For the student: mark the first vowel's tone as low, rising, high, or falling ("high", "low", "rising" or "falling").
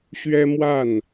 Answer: high